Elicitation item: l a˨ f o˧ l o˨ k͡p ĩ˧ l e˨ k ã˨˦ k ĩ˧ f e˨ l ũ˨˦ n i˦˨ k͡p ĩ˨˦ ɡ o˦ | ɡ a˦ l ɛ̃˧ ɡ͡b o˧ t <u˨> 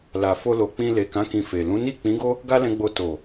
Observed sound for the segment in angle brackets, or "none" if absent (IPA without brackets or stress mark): o˨